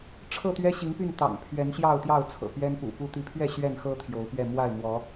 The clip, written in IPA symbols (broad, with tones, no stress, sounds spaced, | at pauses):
ʈ͡ʂʰ ɤ˥˨ t̪ ɥ ɛ˦ ɕ i˨˦ ŋ p y˥˨ n t̪ ɑ̰˨˩ ŋ pʰ ɥ ɛ˨˦ n ɕ j ɑ˥˨ ʊ̯ t̪ j ɑ˥˨ ʊ̯ t͡sʰ ɤ̰˨˩ p ɥ ɛ˦ n p ṵ˨˩ p u˦ t̪ i˨˦ pʰ ɥ ɛ˥˨ ɕ ɥ ɛ˥˨ n x ɤ˦ t̪ʰ j o˨˦ ʊ̯ p ɥ ɛ˥˨ m w a˥˨ ɪ̯ m w ɔ˨˦